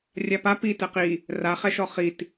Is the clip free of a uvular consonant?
no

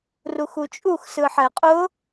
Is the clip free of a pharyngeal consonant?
no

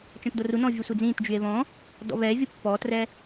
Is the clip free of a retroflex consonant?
yes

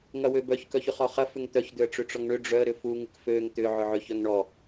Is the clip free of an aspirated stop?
yes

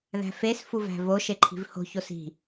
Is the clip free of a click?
no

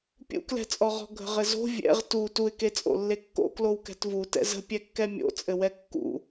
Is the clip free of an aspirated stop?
yes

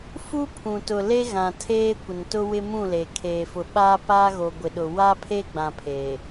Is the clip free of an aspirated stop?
no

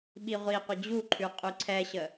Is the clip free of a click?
no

